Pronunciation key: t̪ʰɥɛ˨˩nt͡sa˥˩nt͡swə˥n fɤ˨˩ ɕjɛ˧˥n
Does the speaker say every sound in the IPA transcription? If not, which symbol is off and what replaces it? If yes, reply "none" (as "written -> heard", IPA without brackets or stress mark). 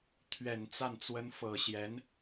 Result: none